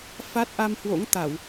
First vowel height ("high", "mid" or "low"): low